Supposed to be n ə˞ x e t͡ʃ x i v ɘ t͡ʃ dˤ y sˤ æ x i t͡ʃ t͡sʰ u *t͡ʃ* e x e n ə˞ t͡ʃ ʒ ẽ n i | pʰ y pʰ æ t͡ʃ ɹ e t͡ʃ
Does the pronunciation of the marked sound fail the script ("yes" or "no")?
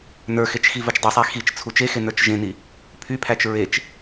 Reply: no